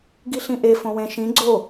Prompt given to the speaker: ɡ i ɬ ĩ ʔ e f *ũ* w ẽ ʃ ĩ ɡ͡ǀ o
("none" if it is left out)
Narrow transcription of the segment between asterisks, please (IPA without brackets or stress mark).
õ